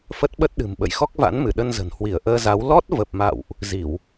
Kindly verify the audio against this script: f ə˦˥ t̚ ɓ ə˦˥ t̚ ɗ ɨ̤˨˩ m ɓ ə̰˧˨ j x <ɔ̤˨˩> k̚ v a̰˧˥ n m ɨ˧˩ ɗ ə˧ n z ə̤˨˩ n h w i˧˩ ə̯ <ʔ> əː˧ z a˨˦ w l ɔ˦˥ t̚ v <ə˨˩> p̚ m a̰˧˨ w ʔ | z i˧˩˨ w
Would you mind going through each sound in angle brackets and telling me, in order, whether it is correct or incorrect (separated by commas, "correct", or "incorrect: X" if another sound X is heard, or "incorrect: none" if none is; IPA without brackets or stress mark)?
incorrect: ɔ˦˥, correct, correct